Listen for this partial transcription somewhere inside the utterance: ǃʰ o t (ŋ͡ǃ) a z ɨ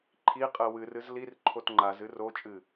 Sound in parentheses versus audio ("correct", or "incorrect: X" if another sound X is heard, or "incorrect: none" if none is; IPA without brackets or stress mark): correct